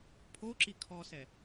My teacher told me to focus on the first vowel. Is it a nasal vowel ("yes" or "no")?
no